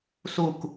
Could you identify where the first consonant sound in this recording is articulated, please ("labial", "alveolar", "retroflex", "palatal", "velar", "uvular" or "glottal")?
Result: alveolar